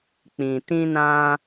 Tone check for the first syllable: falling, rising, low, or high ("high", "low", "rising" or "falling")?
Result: low